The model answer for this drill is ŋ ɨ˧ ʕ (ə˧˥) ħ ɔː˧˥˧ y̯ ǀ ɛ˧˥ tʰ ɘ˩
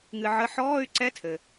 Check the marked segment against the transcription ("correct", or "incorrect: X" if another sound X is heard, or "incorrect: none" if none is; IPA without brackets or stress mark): incorrect: ə˧˥˧